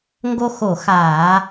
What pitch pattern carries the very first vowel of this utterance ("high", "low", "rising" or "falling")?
high